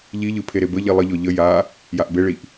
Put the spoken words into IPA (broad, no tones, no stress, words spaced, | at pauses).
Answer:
ʎiʎɯ pʰeɾebəʎi lˠəʎɔ ʎə ja | jaʔbeɭiʔ